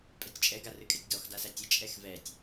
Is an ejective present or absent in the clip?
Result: present